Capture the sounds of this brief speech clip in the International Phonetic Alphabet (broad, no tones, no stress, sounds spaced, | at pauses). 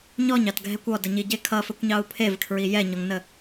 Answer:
ɲ ɔ ɲ ɑ t ɡʱ ɛ kʷ ɔ d ə ɲ i ɟ e kʰ ʌ f ɘ kʷ ɲ ɑ u̯ pʰ e v kʰ ɹ i j ɛ ɲ ɔ ŋ n ə